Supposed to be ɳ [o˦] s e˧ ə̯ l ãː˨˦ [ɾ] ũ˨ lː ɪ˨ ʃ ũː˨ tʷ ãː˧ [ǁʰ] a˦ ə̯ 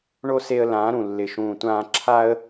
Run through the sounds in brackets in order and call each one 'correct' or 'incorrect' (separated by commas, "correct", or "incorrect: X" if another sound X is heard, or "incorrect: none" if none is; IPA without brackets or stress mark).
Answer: correct, correct, correct